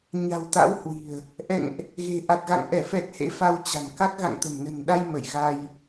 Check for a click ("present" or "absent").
absent